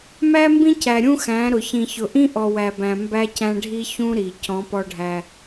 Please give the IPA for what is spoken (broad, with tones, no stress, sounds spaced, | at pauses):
m æ˦ m b ĩ˦ c æ˨ ɾʲ ũ˦ x æ̃˨˦ ɾ ʊ˨ ç ĩ˨ ç ʊ˨ ʔ ĩ˦ ʔ ɔ˨ w æ˨ b æ̃˨ m b æ˦ c æ̃˦ ɖʱ i˦ ç ũ˦ ɾ i˨ c ɔ̃˨˦ p ɔ˦ ɖʱ æ˦